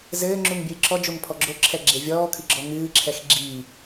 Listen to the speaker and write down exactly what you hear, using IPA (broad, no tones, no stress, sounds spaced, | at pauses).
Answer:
z ɘː ŋ͡ǁ u ŋ bʲ ɨː ǁ ɔ d͡ʒ o ŋ pʰ ɔ ɡ͡ǁ o ǁʰ ɛ ɡ͡ǁ e vʲ ɔː kʰ ɨ ɡ͡ǁ ɔ ŋ ɨː ǁʰ ɛ x ɡ͡ǁ iː